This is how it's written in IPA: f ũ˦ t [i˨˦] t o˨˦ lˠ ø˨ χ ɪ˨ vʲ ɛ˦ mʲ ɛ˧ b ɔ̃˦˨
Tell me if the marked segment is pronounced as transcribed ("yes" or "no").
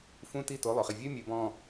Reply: no